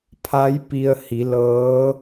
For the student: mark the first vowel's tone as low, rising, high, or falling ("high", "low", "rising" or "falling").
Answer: rising